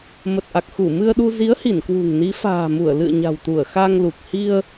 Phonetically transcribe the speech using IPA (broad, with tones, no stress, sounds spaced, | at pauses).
m ə˨˩ t̚ ʔ a˨˩ k̚ x u˧˩ m ɨ˧ ə̯ ɗ u˧ z i˨˦ ə̯ h i˧˩ n k w ṳ˨˩ ŋ n i˨˦ f a̤ː˨˩ m u˧˩ ə̯ l ɨ̰˧˨ ə̯ ɲ a̤˨˩ w t̪ u˧˩ ə̯ x a˧ ŋ l u˨˩ k̚ h i˧ ə̯